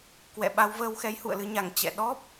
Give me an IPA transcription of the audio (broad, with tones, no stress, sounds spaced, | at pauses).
k w ɛ̰˧˨ ɓ a˧ w v əː˧ w x ɛ˨˦ j h ṵ˧˨ ə̯ l ɨ˧ ɲ a˧˩ ŋ t͡ɕ ɛ̰˧˨ ɗ ɔ˦˥ p̚